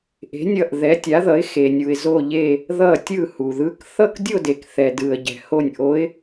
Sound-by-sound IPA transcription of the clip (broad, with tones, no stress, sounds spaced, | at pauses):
ʔ e̤˨˦ nʲ ʌ˧˩ ʔ ð ɛ˨˦ tʲ a˨˦ ð ʌ˨˦ ɪ̯ x e˩ nʲ u˩ ɪ̯ z o˧˩ ʎ e˧˩ | ð ʌ˧˩ tʲ ɯ˧˩ h u˩ ð ɯ˨˦ k θ ʌ˥˧ k dʲ o˥˧ d e˩ k θ ɛ˩ d ɯ˩ ə̯ ɟ ɛ̤˩ h o˧˩ nʲ ʔ o˨˦ ɪ̯